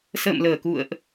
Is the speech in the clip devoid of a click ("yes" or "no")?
yes